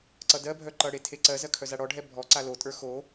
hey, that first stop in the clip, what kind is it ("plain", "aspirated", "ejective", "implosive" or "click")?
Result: click